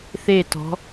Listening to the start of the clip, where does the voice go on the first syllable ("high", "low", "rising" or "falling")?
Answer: falling